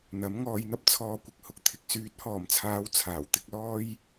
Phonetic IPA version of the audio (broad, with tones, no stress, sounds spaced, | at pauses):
n̪ ɐ˨˥ m ŋ ɔː˧ j n̪ ɐ˥ p̚ t͡sʰ ɔː˧ kʷ ɪ˧ k̚ h ʊ˨ k̚ t̪ʰ ɪ˨ k̚ s yː˨˥ t̚ h ɔː˨˩ m t͡sʰ aː˨˧ w t͡sʰ aː˨˩ w t̪ ɪ˨˥ k̚ l ɔː˥ j